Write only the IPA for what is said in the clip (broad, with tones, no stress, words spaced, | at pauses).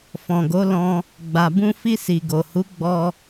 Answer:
fɔ̃˨ɡo˨˦lɔ̃˧ | ɡ͡ba˨bũ˧fi˧ si˨ɡo˨hu˨˦ ɡ͡bɔ˧